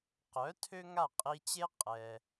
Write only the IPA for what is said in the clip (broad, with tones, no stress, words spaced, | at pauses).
qœ˩˥ tʰø˥ŋa˥˩qʼi˧t͡ɕe˥ qʼɛ˩